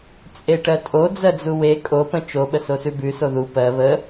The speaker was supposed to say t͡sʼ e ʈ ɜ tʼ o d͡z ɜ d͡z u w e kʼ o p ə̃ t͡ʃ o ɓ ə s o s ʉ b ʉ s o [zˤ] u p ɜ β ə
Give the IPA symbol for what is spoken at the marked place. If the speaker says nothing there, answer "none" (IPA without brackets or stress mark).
ð